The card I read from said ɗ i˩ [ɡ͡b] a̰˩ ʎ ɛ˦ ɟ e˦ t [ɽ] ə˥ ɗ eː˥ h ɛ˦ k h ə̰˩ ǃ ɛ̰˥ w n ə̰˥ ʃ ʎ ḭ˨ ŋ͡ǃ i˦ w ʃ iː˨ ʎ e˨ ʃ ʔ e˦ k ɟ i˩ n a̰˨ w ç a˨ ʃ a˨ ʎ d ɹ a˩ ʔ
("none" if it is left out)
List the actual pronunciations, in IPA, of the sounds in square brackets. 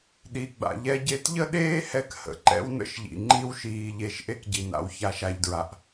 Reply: ɡ͡b, ʎ

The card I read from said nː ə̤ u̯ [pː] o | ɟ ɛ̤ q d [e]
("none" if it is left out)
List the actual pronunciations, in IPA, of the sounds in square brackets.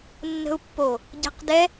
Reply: pː, ɛ

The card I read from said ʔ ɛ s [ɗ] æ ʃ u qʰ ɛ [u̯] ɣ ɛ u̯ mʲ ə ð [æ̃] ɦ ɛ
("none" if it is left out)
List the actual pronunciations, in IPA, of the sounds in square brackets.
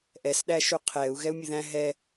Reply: ɗ, u̯, æ̃

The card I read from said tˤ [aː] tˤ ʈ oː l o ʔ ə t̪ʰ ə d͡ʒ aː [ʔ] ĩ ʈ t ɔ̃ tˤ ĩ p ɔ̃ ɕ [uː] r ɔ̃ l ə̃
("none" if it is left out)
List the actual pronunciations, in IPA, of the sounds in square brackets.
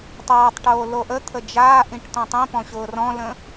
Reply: aː, ʔ, ʊː

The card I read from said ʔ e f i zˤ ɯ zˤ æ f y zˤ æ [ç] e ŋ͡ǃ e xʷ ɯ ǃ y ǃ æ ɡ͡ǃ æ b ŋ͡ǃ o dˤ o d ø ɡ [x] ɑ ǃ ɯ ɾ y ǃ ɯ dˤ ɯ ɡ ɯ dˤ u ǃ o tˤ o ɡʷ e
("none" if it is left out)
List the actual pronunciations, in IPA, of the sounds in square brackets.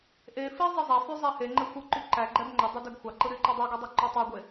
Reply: h, xʷ

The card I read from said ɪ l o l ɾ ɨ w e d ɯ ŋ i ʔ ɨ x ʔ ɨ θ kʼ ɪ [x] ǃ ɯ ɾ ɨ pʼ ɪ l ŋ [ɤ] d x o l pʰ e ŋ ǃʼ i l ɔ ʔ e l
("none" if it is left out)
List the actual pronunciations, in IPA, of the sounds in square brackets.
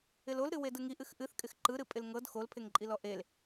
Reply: x, ɤ

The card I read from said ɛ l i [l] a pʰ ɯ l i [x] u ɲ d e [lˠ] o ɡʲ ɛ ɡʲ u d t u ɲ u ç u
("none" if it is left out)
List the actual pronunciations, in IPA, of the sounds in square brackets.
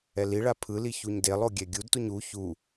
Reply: ɭ, ç, lˠ

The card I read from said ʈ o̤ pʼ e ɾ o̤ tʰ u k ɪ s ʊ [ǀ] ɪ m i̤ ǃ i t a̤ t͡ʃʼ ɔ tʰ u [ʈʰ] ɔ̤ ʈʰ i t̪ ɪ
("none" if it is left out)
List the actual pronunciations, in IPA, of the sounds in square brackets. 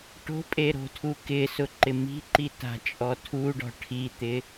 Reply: ǃ, ɖ

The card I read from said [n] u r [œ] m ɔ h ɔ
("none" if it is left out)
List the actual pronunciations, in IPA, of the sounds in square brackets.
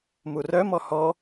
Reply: m, œ

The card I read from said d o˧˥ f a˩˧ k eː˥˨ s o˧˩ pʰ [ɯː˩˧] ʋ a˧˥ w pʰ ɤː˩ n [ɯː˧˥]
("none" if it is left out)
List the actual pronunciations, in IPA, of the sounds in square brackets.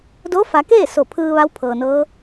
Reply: ɯː˧, ɤː˧˥

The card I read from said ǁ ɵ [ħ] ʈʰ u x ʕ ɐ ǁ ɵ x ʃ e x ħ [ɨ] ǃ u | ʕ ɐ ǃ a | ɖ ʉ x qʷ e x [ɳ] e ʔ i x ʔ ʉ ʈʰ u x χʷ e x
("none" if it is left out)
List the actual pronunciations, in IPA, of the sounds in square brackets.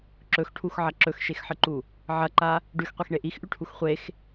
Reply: x, ɨ, ɳ

